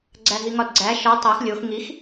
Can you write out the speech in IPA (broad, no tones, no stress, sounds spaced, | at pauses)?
ɡ͡ǀ æ ɦ i ŋ ɒ d ɡ͡ǀ æ ʃ ɒ tˤ æ x lʲ o x ŋ i x